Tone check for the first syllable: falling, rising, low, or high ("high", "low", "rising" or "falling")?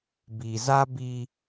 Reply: low